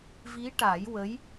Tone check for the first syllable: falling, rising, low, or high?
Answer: rising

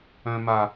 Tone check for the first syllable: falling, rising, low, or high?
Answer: high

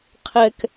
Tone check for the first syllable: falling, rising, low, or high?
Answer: high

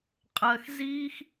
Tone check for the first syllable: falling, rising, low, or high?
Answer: low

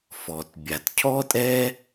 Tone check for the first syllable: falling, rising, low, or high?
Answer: low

